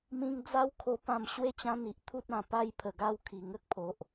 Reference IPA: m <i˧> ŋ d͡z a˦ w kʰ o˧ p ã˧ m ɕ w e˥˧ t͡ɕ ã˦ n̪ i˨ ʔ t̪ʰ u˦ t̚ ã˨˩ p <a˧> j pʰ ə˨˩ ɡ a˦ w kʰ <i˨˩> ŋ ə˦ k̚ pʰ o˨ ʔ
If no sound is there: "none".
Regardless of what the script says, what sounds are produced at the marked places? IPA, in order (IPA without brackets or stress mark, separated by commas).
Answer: ĩ˧, a˦, i˨˩